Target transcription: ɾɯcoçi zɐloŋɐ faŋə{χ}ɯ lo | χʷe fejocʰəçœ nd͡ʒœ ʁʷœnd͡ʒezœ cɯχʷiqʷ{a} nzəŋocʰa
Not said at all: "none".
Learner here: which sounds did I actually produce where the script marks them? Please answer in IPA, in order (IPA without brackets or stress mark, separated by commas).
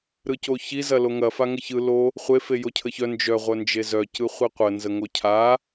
ç, ə